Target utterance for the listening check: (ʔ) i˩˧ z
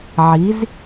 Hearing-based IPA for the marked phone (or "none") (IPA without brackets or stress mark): ʕ